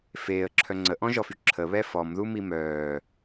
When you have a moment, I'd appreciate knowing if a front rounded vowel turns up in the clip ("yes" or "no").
yes